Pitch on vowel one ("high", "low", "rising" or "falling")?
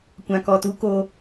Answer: low